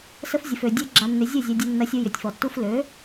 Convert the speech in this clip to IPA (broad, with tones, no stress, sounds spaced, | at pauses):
s ə˧ f zʲ ə˨ f ø˨ dʲ ø˧ ɡ͡ǁ a˨ nː ʏ˨ zʲ ɵ˦˨ zʲ ɐ˧ dʲ ɛ˧ nː ɐ˧ sʲ u˧ j ʏ˨ tʲ f ɔ˨ tː u˧ f l ø˨˦